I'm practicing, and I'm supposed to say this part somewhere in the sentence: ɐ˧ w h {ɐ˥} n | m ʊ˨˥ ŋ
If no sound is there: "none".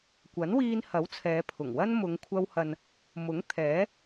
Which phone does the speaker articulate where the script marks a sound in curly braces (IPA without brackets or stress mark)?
ɐ˨